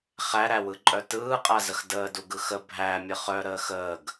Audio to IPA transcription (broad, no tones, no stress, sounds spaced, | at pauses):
χ æ ɾ æ w ɯ ǃʼ œ t ɯː qʼ a z ə x d əː d u ɡ ɯ x ə bʱ æ mʲ ə χ œ ɾ əː x əː ɡ